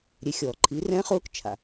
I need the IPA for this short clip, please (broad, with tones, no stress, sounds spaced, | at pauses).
ɾʲ e˩˥ xʲ ɔː˩ ǃʰ i˩˥ r ɛ̃˥ χ ʊː˥ k t͡ʃʰ a̰˩